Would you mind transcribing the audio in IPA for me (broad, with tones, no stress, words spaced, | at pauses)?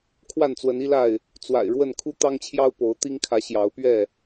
kʰwa˥˨nt͡swə˨˦ni˦la˥˨ɪ̯ | t͡swa̰˨˩ɪ̯ ɻwə˥˨n kʰu˦t̪ɑ˦ŋt͡ɕʰjɑ˦ʊ̯ po˨˦ʊ̯t̪i˦ŋkʰä˨˦ ɕjɑ˨˦ʊ̯pɥɛ˥˨